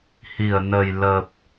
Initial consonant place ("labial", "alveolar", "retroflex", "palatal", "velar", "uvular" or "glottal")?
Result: glottal